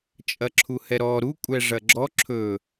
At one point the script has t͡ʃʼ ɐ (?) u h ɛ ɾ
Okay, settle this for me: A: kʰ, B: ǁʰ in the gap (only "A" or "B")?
B